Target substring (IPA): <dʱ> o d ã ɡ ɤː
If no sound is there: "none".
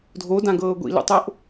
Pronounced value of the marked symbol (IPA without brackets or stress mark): dʱ